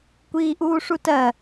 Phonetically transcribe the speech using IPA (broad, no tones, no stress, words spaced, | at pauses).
kʷiːʔuːʂutɜ